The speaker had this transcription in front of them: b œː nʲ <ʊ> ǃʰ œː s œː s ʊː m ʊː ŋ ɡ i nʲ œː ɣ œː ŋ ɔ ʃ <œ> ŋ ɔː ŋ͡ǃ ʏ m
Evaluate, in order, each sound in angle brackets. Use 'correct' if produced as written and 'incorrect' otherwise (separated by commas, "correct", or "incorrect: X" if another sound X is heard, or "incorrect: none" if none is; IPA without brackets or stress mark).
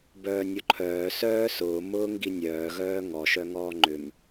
correct, correct